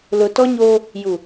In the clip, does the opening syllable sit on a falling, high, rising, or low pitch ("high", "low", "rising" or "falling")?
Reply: low